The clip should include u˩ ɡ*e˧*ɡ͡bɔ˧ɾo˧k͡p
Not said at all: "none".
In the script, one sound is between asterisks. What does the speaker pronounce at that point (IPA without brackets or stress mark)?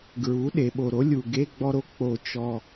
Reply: e˧˥˧